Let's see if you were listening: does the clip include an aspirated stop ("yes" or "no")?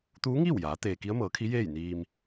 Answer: yes